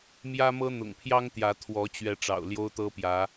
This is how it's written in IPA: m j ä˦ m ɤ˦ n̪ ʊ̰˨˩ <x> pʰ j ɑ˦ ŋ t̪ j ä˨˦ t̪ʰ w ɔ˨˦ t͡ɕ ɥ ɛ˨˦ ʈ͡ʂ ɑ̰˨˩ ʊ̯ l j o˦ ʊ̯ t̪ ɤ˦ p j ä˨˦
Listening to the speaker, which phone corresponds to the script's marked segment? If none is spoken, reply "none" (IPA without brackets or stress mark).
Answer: ŋ